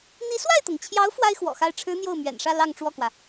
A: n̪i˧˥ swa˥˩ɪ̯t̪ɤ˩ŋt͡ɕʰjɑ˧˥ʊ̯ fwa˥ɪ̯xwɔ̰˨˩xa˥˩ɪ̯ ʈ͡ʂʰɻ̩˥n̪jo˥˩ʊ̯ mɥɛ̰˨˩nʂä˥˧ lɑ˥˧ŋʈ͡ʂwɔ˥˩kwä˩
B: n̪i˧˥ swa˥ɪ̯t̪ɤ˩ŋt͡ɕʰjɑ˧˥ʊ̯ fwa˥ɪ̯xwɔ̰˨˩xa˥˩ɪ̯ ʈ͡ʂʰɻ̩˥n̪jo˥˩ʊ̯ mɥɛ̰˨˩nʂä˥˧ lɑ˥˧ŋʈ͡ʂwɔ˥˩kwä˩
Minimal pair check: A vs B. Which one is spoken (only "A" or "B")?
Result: A